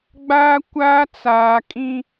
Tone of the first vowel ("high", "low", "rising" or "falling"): high